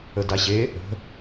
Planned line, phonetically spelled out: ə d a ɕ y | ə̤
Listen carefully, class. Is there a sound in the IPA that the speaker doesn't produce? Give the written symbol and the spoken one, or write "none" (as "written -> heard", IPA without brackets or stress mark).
y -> e